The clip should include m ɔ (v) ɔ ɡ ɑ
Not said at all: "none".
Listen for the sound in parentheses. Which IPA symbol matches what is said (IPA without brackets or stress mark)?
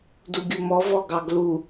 v